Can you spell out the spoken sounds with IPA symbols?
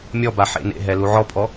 mʲ ɔ b a ħ ḛ n ḛ ɦ ɛ l u ʕ ɔ pʼ ɔ

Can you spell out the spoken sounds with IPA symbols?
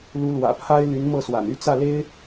l u˧˥ l w ä̰˨˩ pʰ a˥ ɪ̯ l y˧˥ n m ɤ˥˩ s w a̰˨˩ n y˥˧ t͡s ä˥˩ l e˥ ɪ̯

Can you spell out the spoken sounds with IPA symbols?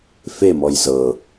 f e m ɔ j z ɤ

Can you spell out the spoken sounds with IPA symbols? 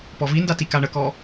p ɔ v i n d a t i k a ɳ ə k ɔ

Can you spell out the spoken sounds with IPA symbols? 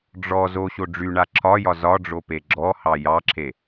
ɖ͡ʐ ɔ z o ɕ o ɖ͡ʐ y ɳ a ǁʰ ɒ j ɒ z ɒ ɖ͡ʐ o p e ɡ͡ǁ ɔ h ɑ j ɑ ǁʰ e

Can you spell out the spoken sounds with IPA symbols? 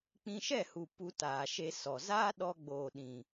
k͡p ĩ˧ ʃ ɛ˦˨ h u˨ p u˧ t aː˨ ʃ e˧ s ɔ˨ z aː˦ ɗ ɔ˧ ɡ͡b oː˨ ɗ ĩ˨

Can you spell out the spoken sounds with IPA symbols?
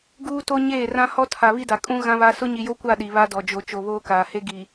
ɡ uː˦ t o˦ ɲ eː˦˨ r ã˦ h ɔ˦ tʰ a˨ β i˦ d a˨ kʼ ũ˦ ɣ ã˦ β a˦ s ʊ˦ ɲ i˨ j o˦ kʷ a˦˨ ɗ i˨ β a˦ d ɔ˨ d͡ʒ o˨ t͡ʃ o˨ β oː˦ k aː˨ h e˦ ɡ i˨

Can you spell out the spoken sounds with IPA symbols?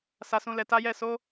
s a˨ s ũ˨ l ɛ˨ t a˨˦ j ɛ˦˨ s o˨˦

